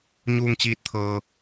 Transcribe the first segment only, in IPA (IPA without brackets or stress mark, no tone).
ɲ